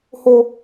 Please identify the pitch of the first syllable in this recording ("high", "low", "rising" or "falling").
low